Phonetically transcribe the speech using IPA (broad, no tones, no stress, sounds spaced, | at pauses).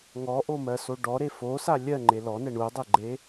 ŋ ɔ ʔ o m ɜ s o ɖ ɔ ɾ e f o s a lʲ ɜ ŋ͡ǃ e l ɔ n ɛ ɳ u dˤ e ɡ͡ǃ e